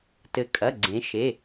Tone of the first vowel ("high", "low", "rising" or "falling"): rising